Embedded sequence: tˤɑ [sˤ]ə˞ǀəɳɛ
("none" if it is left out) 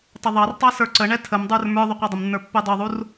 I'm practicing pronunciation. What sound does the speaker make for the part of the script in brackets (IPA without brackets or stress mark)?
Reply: s